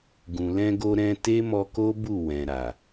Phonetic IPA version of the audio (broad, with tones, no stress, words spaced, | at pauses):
ɡũ˨lɛ̃˧ɡo˧ ɾɛ̃˧ te˦mɔ˧ko˦bu˦˨ wɛ̃˨ɾa˨